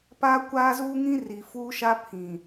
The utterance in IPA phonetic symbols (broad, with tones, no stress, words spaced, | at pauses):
paː˦ kʷaː˦zuː˦ŋĩ˦ ri˨fuː˦ʃa˦ pʰĩ˨